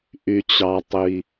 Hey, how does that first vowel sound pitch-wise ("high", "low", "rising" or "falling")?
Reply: low